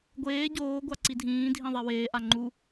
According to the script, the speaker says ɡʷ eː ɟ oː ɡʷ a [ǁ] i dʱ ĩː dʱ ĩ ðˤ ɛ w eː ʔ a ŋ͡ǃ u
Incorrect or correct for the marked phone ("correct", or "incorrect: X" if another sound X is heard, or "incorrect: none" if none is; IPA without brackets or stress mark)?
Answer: incorrect: ǀ